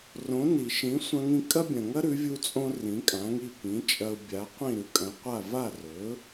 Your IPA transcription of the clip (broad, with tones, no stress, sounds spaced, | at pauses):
r õ˩˥ n i˩ ʃ ĩ˩˥ sʷ ɐ̃˧ ŋ ĩ˧ kʼ ɐ˥ bʲ ɐ̃˩ ŋ ɐ˥ ɾ ʉ˩˥ vʲ u˧ t͡sʼ õ˥ r ĩ˩˥ kʼ ã˩˥ ŋ i˥˩ p ĩ˩˥ t͡ʃʼ ɐ˧ ʊ̯ bʲ a˩˥ qʷ ĩ˥˩ ɾ ʉ˩˥ kʼ ɐ̃˩˥ qʷ a˥˩ v a˥˩ r ɵ˩˥